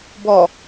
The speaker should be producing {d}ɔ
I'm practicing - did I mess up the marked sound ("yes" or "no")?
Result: yes